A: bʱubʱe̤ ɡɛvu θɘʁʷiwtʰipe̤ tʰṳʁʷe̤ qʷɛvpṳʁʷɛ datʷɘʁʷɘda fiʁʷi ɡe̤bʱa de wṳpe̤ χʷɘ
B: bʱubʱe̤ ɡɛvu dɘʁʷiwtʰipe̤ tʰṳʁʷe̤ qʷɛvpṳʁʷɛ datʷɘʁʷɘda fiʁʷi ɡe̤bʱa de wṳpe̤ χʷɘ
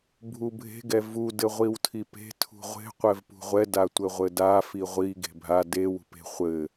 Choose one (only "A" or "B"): B